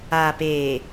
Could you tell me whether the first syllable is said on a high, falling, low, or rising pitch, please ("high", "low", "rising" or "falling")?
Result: low